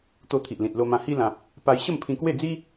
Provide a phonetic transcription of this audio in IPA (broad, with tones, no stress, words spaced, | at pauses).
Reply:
t̪o˧t̪ʰi˨ʔlĩ˨t̚ lo˧mã˧ hi˧lã˨p̚ | pa˧j ɕə˥˧mpʰĩ˧kwe˥˧d͡zi˦